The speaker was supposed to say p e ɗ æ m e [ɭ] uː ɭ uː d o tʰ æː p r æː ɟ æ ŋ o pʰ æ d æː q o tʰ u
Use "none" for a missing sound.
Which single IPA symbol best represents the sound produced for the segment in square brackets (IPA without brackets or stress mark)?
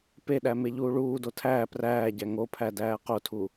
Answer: ʎ